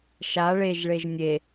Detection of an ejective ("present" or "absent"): absent